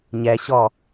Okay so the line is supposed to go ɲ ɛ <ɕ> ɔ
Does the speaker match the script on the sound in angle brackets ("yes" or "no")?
yes